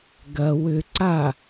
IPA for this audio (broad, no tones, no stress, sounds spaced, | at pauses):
ɡ ɐ w ʏ ǀ a